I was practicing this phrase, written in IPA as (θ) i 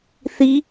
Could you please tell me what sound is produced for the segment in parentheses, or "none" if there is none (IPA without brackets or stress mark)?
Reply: θ